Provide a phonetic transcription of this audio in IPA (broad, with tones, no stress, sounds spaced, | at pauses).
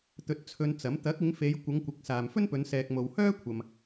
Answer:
t̪ ɵ˧ t̚ t͡sʰ ɵ˧ n t͡s ɐ˨˥ m t̪ ɐ˨˥ k̚ ɪ˨˧ ŋ f e˨˧ j kʷ ɐ˨˧ ŋ kʷ ɪ˨˥ k̚ s aː˨ m f ɵ˥ n p ɵ˨˧ n s ɛː˨ k̚ m o˨ w h œː˥ kʷʰ ɐ˨ m